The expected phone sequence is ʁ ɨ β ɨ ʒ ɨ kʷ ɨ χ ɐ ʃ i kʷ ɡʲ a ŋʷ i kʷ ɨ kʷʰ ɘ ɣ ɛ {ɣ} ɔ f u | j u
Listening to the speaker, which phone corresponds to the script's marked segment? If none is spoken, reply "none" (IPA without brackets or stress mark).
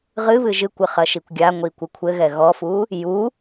ɣ